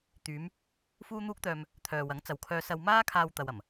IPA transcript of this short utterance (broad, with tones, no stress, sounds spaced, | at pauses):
t̪ yː˨˧ m | f uː˥ n̪ uː˥ k̚ t̪ œː˧ m | t̪ʰ œː˨ w ɐ˨˥ ŋ t͡s ɐ˨ w kʰ œː˧ s ɐ˧ w m aː˥ kʰ aː˧ w t̪ ɐ˧ w ɐ˨˩ m